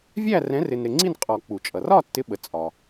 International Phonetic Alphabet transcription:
vʲ æ˥˨ r ɛ̃˨˥ r ɪ˨ n ɾ ɪ˨ ŋ͡ǀ i˥˨ n qʼ ɒ˨˩˦ k͡p u˨˩˦ t͡ʃʼ ʌ˨ r ɒ˥˨ tː ɪ˨˥ ɓ ə˨˥ t͡sʼ ɒ˨

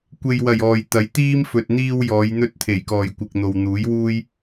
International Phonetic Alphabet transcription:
kʷ e˨ j w ɐ˨˩ j ɔː˨ j t̪ ɐ˨˥ j t̪ iː˥ m f ɵ˨ t̚ n̪ iː˧ w j ɔː˨˧ j n̪ ɵ˧ t̚ t̪ʰ e˨˩ j k ɔː˨˩ j kʷ ɪ˨ k̚ n̪ o˨ w n̪ uː˨˥ j w uː˥ j

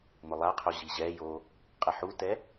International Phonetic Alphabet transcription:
m ʊ lˠ a qʰ o ʑ i ʑ ɛ j o | qʼ ɛ ħ u t ɛ

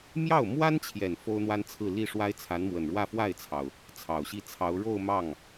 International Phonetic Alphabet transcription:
m j ɑ˥˩ ʊ̯ m w a˥ n t͡ɕʰ j ɛ˨˩ n f o˥ ʊ̯ n̪ w a˥ n t͡sʰ ɹ̩˥˧ l i˥˩ ʂ w a˥ ɪ̯ t͡sʰ a˧˥ n m w ə˨˩ n ɻ w ä˥˧ f w a˥˩ ɪ̯ t͡sʰ ɑ˩ ʊ̯ | t͡sʰ ɑ˨˩ ʊ̯ ɕ i˥˩ t͡sʰ ɑ˧˥ ʊ̯ ɻ o˥˧ ʊ̯ m ɑ˥˩ ŋ

